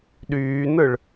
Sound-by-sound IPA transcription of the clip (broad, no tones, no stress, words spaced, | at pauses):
ɗyːnɯɭ